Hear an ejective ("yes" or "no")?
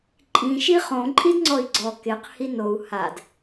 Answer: yes